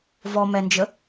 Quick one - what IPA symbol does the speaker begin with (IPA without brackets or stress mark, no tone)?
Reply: v